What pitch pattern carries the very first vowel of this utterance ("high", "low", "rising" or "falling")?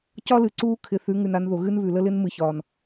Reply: high